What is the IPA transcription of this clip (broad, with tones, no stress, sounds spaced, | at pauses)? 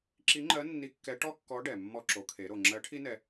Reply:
ǁ i˧˥ ŋ͡ǃ ɜ˧˥ nː i˧˥ kː ɛ˧˥ ʈ ɔ˥ kː ɔ˧˥ ɖ ɛ˩ mː ɔ˧ ǁ o˩˧ kʰ e˩˧ ɾ o˩ ŋ͡ǁ ɜ˧˥ ʈʰ i˥ n ɛ˧